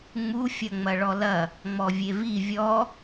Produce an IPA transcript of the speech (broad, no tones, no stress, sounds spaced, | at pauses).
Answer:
ŋ͡m u fʲ ɐ ŋ͡m ɐ ɭ ɔ l ɐ | ŋ͡m ɔ vʲ e v i vʲ ɔ